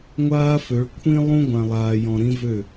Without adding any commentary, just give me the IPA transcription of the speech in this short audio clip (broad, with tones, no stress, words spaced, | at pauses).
ŋʷaː˦fø˨˦ɭ kʷʰĩ˦ lˠũ˦ ɡʷã˨lˠaː˨ jɔ̃˨ɾĩ˦vø˦˨